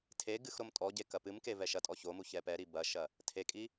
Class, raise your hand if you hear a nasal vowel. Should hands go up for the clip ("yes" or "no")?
no